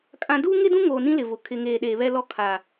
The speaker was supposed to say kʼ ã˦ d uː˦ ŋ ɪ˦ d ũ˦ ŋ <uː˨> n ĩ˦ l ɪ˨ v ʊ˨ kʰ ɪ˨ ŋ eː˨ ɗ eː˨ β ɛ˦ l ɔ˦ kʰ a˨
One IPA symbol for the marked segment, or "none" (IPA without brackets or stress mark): oː˨